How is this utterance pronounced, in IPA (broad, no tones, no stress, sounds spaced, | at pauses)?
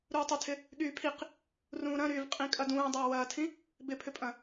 ɾ uː tˤ ʏ tʰ ɪ | ɠ yː pʰ i q | r ũː ɾ ɐ̃ ɾ yː v qʼ ĩ kʼ ɐ d ũː dˤ ɐː w ɐː tʰ ĩ | b ɪ pʰ ʏ pʼ ɐ̃